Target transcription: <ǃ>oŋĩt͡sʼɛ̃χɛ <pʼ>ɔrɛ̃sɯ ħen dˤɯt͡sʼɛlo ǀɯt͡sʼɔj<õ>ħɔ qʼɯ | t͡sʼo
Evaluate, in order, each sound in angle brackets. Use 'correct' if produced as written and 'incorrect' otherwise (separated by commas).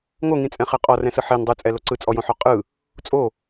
incorrect, incorrect, correct